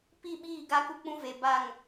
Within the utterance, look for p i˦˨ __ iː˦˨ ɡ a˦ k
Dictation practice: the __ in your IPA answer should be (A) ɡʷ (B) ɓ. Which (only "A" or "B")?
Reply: B